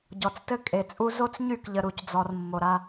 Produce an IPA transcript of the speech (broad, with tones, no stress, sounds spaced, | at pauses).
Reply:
ɟ ɔ˨ t͡s t ɘ˦ kʼ e˨ t͡sʼ u˦ z o˦ t͡s ɲ y˦˨ k ʎ ə˨ ɾ u˨ c d͡z ɔ˨ r mː o˨ ɾ a˦